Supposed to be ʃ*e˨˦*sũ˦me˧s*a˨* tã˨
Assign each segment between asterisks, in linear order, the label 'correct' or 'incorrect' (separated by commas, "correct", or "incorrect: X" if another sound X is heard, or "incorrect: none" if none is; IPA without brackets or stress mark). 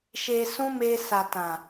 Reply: incorrect: e˧, correct